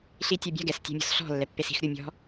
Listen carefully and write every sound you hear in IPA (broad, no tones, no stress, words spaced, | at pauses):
ɬitʲobʲa̤ ɡɛs tʲa̤mʲɔ̤sɬɔ̤ lːɛpːesi̤x ɾʲumʲɔ̤